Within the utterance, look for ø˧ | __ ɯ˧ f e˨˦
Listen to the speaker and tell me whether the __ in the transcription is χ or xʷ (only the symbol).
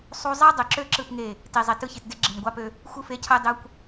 xʷ